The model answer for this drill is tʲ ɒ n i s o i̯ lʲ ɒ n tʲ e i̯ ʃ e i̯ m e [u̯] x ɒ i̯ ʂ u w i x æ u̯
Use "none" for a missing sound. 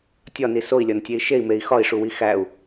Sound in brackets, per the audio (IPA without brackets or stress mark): i̯